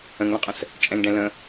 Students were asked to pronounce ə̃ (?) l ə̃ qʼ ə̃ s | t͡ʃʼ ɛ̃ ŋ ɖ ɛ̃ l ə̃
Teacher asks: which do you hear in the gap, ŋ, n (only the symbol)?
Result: ŋ